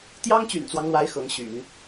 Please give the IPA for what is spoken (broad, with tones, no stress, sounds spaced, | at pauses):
t̪ j ɑ˥ ŋ t͡ɕ y̰˨˩ n t͡s w ɑ˦ ŋ l w a˧˥ ɪ̯ x ɤ˧˥ ŋ ɕ y̰˨˩˦ n